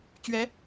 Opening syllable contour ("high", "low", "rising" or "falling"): rising